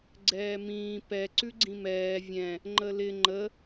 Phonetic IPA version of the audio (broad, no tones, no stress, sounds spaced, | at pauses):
ɡ͡ǀ ɛː m ĩː p ɛ ǀ ʉ ɡ͡ǀ ĩ m ɛː vʲ ɛ̃ | ŋ͡ǃ ə l ɪ ŋ͡ǃ ə